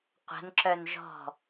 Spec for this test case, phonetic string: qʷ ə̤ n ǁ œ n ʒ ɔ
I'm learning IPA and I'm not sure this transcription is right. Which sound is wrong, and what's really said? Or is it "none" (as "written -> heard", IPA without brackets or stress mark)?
ɔ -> ɔ̤